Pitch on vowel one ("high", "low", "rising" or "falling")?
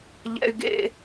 high